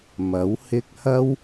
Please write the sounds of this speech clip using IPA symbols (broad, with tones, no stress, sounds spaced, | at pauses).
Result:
m ɐ˨˥ w h ɪ˥ k̚ h ɐ˥ w